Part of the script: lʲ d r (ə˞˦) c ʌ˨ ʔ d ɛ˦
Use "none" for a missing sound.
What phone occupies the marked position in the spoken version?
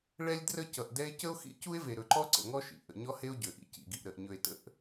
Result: ə˦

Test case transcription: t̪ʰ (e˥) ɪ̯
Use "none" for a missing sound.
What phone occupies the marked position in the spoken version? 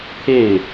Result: e˥˩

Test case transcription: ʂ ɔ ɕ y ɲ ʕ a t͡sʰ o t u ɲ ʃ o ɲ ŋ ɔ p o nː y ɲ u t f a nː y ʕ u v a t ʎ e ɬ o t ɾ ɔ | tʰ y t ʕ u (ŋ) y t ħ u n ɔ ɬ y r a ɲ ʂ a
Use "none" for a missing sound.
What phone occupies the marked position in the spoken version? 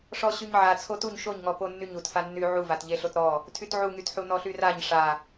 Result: ŋ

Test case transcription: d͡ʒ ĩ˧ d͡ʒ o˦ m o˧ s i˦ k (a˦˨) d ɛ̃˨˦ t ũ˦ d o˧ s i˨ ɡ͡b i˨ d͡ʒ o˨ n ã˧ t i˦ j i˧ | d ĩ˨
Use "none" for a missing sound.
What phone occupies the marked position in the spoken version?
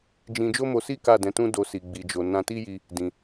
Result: a˦˨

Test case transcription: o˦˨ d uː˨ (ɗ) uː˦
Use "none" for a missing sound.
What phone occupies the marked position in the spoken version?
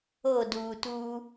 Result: t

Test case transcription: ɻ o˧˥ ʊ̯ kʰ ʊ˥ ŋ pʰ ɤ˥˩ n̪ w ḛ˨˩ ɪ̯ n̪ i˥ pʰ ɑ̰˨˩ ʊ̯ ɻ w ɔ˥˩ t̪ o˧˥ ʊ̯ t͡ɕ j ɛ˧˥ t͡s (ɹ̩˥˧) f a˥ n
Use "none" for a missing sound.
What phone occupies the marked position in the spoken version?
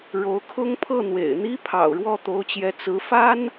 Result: ɹ̩˧˥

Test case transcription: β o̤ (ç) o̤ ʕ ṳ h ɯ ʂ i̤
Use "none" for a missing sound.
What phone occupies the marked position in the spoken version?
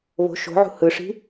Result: ʃ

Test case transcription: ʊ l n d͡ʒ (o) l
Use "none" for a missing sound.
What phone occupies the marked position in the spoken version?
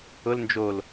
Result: o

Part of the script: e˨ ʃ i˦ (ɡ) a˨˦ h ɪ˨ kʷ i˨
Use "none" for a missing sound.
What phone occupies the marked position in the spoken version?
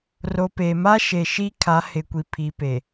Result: kʰ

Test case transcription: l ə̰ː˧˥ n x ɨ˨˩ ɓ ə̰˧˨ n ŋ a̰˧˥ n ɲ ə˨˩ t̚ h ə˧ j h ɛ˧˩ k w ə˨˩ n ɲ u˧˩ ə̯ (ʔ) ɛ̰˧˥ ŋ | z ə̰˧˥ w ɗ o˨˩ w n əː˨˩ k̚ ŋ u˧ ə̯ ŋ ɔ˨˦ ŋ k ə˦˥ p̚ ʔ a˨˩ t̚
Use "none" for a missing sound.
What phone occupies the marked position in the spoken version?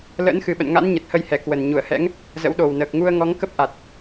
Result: h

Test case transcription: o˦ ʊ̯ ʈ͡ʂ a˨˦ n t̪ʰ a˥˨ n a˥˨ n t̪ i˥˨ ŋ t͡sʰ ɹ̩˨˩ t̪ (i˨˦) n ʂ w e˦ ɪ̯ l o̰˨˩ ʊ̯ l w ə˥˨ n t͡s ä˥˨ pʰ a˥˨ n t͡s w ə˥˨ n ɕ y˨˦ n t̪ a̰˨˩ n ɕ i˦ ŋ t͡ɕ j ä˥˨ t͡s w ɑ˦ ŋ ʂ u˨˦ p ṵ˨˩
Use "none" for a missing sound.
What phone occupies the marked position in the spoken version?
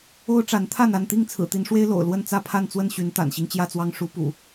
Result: i˨˦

